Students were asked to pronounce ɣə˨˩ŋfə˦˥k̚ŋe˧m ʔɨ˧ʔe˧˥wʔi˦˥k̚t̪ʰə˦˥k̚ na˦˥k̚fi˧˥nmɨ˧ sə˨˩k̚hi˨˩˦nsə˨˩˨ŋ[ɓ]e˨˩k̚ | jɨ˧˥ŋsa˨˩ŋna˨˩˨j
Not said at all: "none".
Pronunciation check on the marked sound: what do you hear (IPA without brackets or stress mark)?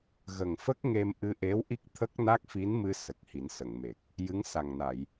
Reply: m